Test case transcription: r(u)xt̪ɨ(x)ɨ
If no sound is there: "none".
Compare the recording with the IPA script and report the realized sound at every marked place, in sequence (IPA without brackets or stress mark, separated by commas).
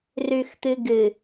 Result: ʉ, ɡ